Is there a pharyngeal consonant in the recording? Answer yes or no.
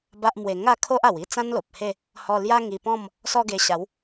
no